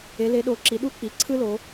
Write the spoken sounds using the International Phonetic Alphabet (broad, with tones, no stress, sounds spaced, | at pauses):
e˩˧ l e˩˧ ɗ o˩˧ ǁ i˩˧ ɗ u˦ k͡p i˩˧ ǀʰ ɯ˦ l o˩˧